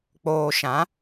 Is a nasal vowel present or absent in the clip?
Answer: present